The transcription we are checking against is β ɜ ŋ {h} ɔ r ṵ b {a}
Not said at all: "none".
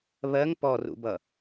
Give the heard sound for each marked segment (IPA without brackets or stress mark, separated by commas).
p, ʌ